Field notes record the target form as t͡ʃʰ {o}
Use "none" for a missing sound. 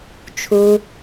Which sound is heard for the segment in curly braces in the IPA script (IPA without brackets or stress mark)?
u